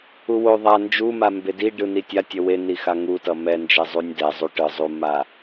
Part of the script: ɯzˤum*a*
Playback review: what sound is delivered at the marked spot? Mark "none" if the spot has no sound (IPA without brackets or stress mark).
a